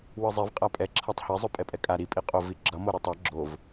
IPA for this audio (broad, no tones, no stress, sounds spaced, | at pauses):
w ɯ zˤ e v qʼ a pʼ ɛ ǁʰ a tˤ h e zˤ o pʼ ɛ pʼ ɛ kʼ a ɾ i pʼ i qʼ o v i ɡ͡ǁ ʌ m o ɾ ʌ tˤ a ɡ͡ǁ o v